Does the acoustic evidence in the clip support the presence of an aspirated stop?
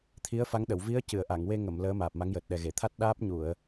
yes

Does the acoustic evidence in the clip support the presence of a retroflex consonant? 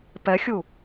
no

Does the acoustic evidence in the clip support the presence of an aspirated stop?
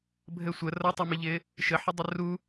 no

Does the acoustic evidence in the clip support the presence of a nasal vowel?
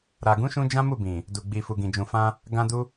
yes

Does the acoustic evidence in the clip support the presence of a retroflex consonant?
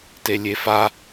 no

